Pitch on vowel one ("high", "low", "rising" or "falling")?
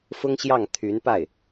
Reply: high